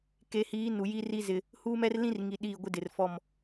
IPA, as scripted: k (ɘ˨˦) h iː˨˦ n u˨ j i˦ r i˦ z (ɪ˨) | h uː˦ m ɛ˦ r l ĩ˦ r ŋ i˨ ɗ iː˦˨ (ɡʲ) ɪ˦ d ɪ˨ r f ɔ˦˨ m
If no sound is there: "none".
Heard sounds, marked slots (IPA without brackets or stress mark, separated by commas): e˨˦, ɪ˨, ɡʷ